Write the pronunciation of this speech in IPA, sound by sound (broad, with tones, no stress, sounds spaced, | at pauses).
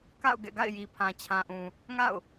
k a̰˦˨ ʊ̯ ɡ ɛ̰˦˨ ɡ a̰˦˨ ɪ̯ j i˨ pʰ ã˨ t͡ɕʰ ã˨ ʔ ũ˨ | ŋ a̰˦˨ ʊ̯